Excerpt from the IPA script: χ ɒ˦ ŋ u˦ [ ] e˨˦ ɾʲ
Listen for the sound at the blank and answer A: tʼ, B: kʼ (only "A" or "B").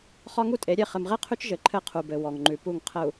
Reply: A